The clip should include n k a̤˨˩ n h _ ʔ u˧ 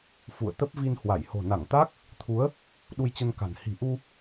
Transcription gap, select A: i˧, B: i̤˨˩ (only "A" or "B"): B